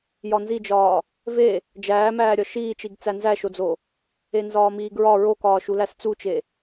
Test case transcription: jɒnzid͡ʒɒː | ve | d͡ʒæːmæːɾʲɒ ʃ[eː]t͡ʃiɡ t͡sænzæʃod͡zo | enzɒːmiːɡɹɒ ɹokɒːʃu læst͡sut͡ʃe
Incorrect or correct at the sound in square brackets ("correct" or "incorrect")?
incorrect